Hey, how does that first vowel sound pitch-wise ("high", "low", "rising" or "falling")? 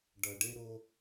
low